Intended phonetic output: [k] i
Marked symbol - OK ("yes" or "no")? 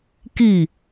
yes